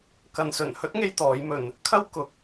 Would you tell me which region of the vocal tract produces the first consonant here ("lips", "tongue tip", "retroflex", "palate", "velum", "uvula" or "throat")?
velum